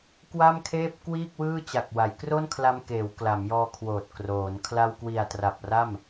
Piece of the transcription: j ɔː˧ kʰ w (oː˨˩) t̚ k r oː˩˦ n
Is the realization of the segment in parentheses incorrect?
no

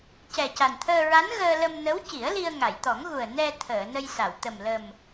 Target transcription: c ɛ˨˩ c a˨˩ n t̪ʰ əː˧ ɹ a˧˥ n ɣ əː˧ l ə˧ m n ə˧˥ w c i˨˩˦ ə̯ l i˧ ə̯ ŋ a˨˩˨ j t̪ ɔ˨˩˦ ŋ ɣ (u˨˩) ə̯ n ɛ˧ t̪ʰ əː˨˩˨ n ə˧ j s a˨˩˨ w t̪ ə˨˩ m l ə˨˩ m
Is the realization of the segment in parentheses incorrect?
no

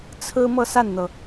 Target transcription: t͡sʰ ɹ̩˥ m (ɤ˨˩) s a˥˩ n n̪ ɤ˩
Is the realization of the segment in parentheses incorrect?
yes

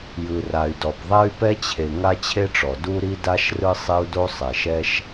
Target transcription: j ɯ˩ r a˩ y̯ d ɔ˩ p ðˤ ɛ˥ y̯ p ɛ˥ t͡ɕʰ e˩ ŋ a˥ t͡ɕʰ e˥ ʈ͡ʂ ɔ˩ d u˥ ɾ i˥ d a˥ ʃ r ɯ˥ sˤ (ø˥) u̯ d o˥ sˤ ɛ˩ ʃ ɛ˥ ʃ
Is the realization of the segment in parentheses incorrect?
yes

